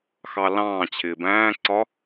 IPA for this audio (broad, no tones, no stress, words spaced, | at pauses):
xɑlɑ̃ː t͡ɕʰɪːbæ̃ːǀɒ